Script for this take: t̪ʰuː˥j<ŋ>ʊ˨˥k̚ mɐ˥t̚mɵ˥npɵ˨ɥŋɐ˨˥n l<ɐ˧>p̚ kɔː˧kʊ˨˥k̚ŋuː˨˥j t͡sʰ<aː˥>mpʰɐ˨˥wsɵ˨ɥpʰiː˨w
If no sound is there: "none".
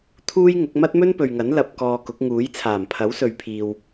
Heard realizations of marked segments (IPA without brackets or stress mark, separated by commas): ŋ, ɐ˨, aː˨˩